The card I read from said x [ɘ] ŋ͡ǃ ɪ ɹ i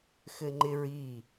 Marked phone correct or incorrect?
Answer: correct